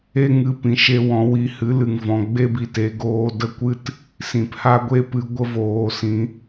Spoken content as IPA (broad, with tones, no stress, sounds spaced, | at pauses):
e˦ ŋ ɨ˧ p ĩ˨ ʃ e˧ w ɔ̃˨˦ w i˧ h ɨ˨˦ l ɨ˨ ŋ v ɔ̃˨ ɡ͡b e˦ b i˧ t e˨˦ ɡ oː˧ d ə˦ kʷ ɨ˦ t | s ĩ˨ p h a˦ ɡʷ e˦ p ɨ˧ ɡʷ ə˦ v oː˧ s ĩ˧